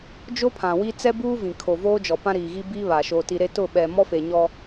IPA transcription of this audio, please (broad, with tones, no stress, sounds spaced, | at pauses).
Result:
d͡ʒ o˦ pʰ ã˨ w i˦ t͡s ɛ˦ b uː˦ v ĩ˨ kʰ o˨ v oː˦ d͡ʒ ɔ˨ p ã˦ ɾ iː˨ ɣ i˦ b iː˦ β a˨ ʃ o˨ t i˨ ɾ e˦ t ʊ˦˨ ɓ ɛ˨ m ɔ˦ f e˨ ɲ ɔ˦